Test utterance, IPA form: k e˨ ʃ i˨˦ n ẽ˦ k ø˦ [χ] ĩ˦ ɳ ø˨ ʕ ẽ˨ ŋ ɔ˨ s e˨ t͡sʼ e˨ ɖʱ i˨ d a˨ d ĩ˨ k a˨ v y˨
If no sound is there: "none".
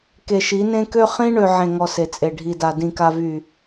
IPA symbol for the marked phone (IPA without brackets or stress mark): χ